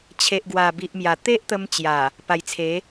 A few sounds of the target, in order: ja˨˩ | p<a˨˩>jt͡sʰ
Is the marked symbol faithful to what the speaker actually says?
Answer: yes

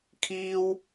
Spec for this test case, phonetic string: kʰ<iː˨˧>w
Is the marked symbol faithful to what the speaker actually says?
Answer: no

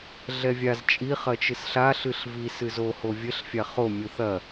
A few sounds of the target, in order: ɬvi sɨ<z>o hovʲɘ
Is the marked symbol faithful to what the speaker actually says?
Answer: yes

